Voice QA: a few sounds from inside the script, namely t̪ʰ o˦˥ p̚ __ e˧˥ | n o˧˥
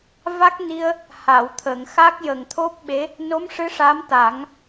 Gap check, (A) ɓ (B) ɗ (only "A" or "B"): A